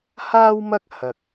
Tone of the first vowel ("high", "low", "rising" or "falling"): high